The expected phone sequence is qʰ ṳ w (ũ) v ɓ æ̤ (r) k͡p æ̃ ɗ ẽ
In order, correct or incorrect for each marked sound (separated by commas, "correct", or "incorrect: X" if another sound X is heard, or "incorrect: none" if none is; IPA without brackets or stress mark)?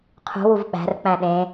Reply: incorrect: u, correct